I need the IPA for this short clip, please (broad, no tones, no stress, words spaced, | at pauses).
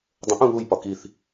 dˤə̃ ʔũ βujpɒ kiθ